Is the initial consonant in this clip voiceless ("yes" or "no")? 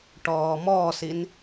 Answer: yes